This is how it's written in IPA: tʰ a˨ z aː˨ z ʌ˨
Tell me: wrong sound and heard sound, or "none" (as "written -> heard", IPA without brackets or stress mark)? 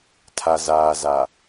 ʌ˨ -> a˨